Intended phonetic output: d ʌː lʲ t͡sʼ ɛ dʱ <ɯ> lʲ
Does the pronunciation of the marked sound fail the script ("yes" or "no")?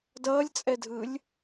no